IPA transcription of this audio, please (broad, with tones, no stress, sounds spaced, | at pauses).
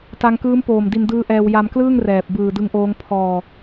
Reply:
t a˧ ŋ k ɯː˦˥ m p oː˨˩ m d i˧ n d ɯː˦˥ ʔ ɛː˧ w j a˧ m k l ɯː˥˩ ŋ r ɛː˨˩ p̚ b ɯː˨˩ d ɯ˦˥ ŋ ʔ oː˦˥ ŋ pʰ ɔː˧